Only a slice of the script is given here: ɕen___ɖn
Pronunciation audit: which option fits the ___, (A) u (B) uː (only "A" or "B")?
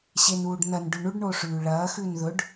B